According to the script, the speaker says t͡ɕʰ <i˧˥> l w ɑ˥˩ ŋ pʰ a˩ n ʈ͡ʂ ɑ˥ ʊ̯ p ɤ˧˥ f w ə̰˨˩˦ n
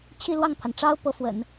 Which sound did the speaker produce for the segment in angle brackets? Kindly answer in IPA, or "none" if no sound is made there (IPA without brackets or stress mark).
i˥˧